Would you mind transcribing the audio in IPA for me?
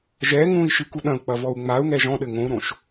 ʒ ɛ ŋ ũ i̯ ʃ ɨ k u ɗ ɐ̃ u̯ k͡p ɐ v ɔ u̯ ŋ͡m a u̯ ŋ ɛ ʒ ɔ̃ ɗ ɘ ŋ õ u̯ ɾ õ ʃ

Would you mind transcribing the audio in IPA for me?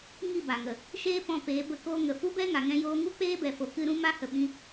ŋ i˦˨ b a˨ ŋ ə˨ | ʃ eː˦ p ɔ̃˧ p eː˨˦ b ə˦˨ k oː˦ ŋ ə˨ f u˦ b ɛ˦ ŋ a˨ ŋ ɛ̃˦ j oː˦ ŋ u˦ k͡p eː˦ b ɛ˨ f o˨ k ɨ˧ ɾ ũ˦ m a˦ h ə˧ ɓ ĩ˦

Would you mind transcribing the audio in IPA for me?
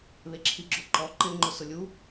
β e ǁʰ i ɡ͡ǁ o ǃ ɔ ǃ ɪ ŋ͡ǃ ʊ s ʊ lʲ u

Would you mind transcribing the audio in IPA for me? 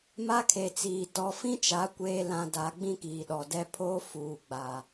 m a˦ kʰ e˨ t͡s iː˨ t ɔ˦ f ĩ˦ t͡ʃ a˨˦ kʷ eː˨ l ã˨ d a˨˦ ɡ͡b ĩ˦ k iː˨ ɗ ɔ˨ d ɛ˦ pʰ oː˦ f uː˨ ɡ͡b a˨

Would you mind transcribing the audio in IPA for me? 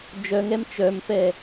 d͡ʒ œ ŋ ɛ m t͡ʃ œ m f ɛ

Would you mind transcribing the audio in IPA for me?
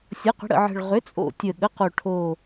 sʲ ɤ˩˥ q ə̤˩˥ ɽ ə̰˨˩ ʕ ə̤˨˩ ɭ ʁ ʏ˩˥ t͡sʼ o̰˨˩ tʲ ə˨˩ ɠ ə˩˥ q o˨˩ ʈʰ o˨˩

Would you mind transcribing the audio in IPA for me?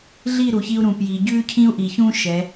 ɮ i˦˨ ɾ u˨ ç i˦ u̯ ɾ ũ˨ p j i˨ ɟ ʉ˦ cʰ ĩ˦ u̯ ʔ i˨ ç ũ˦ ʃ ɛ˨˦

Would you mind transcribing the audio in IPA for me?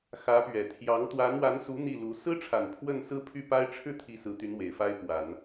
x ä˧˥ p ɥ ɛ˨˩ t̪ʰ j ɑ˧˥ ŋ t̪ w a˧˥ n w a˧˥ n s u˧˥ n̪ i˥˩ l u˧˥ s ɹ̩˥ ʈ͡ʂʰ a˨˩ n pʰ w ə˥˩ n s ɹ̩˥ pʰ y˥˩ p a˥ ɪ̯ ʈ͡ʂʰ ɻ̩˥˧ t̪ʰ i˥˩ s ɹ̩˧˥ t̪ y˧˥ n w e˨˩ ɪ̯ f a˥ ɪ̯ p w a˨˩˦ n

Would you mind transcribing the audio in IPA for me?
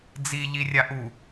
d͡z i ʎ i rʲ a ʔ u

